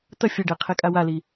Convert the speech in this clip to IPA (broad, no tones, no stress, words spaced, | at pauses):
t̪ɐ fʲɐɖɛqʰɛkʼa wali